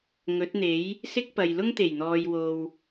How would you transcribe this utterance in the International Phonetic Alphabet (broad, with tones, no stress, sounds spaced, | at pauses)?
ŋ ɵ˨˥ t̚ n̪ e˨˥ j | s ɪ˥ k̚ p ɐ˨ j l ʊ˥ ŋ t̪ e˨˩ j n̪ ɔː˨ j w o˨ w